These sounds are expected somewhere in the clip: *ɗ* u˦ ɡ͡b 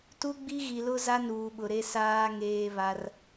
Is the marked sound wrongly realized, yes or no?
yes